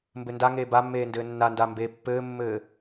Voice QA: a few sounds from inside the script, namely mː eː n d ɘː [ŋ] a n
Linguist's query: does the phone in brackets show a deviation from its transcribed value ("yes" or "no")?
yes